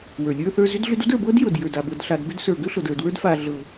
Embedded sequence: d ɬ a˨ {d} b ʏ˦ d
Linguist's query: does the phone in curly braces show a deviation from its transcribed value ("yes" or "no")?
no